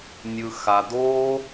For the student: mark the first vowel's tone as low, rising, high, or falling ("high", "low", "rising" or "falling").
low